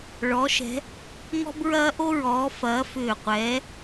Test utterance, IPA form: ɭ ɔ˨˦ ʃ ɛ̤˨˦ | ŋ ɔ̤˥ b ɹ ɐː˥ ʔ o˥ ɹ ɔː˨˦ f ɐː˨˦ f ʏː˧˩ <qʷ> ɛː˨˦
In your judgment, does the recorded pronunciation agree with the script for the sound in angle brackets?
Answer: yes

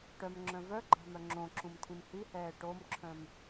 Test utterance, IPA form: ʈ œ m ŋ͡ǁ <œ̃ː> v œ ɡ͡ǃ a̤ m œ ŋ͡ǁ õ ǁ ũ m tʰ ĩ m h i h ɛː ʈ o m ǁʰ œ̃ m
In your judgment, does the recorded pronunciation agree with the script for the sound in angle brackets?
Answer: no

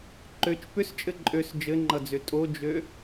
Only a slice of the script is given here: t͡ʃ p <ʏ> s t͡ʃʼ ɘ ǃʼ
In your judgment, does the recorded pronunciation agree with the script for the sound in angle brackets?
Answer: yes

